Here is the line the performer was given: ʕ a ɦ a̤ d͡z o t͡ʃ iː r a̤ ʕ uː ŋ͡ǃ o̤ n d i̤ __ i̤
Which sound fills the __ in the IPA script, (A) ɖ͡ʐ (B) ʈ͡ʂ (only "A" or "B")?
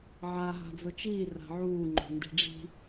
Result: A